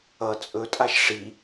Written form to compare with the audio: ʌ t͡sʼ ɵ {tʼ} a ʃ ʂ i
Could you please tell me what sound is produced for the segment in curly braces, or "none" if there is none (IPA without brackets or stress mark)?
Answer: tʼ